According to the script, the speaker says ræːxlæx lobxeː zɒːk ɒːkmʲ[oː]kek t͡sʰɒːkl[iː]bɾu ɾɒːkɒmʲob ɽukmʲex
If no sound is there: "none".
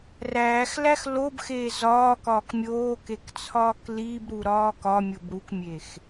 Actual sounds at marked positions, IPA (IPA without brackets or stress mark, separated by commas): oː, iː